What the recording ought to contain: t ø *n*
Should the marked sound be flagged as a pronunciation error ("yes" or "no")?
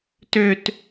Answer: yes